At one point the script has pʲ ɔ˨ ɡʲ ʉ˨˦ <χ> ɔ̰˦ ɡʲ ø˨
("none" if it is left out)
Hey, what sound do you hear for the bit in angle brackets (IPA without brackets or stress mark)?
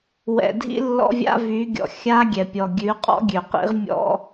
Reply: qʼ